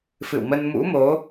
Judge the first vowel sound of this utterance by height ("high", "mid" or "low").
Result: high